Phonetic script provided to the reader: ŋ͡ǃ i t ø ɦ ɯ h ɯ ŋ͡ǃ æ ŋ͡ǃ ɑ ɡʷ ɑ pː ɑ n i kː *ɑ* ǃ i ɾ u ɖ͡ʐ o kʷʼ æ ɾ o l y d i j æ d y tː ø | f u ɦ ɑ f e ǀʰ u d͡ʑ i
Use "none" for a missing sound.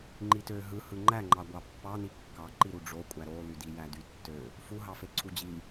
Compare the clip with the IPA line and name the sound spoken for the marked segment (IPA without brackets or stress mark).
ɑ